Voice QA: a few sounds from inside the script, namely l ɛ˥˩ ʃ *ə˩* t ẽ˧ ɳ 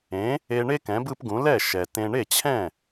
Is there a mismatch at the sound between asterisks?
yes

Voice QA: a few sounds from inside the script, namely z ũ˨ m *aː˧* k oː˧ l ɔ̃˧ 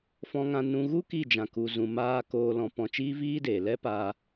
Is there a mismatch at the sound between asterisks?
yes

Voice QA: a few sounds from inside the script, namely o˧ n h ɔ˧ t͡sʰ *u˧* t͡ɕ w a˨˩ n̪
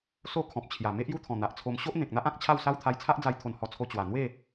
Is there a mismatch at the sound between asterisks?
yes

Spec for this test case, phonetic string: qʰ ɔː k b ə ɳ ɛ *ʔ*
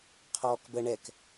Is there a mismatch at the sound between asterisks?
yes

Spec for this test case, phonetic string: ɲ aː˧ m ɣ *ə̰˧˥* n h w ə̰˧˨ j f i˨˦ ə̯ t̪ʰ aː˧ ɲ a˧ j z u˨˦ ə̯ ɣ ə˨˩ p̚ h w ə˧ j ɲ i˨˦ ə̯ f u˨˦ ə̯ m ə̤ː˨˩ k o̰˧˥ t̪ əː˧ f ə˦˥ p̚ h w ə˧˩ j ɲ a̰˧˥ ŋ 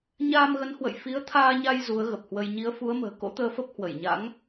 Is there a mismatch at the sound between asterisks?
yes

